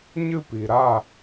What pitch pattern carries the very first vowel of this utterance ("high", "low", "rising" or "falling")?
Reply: falling